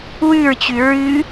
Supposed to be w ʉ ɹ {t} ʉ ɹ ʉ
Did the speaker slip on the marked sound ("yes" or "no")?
yes